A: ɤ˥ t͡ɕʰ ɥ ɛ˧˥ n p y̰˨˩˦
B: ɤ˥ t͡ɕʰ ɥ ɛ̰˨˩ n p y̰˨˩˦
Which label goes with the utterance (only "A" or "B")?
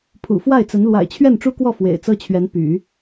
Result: A